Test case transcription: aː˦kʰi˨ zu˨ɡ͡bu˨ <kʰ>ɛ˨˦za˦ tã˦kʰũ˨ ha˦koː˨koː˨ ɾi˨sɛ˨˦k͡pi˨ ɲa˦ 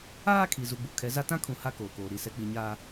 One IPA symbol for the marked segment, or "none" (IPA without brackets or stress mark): kʰ